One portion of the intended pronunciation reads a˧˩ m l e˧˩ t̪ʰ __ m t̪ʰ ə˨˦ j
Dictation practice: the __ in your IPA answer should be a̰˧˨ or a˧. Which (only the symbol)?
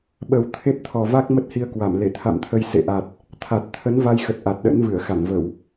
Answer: a̰˧˨